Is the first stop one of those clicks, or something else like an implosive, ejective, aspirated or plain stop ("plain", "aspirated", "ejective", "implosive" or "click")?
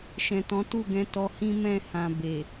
plain